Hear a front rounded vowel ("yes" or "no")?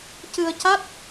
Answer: no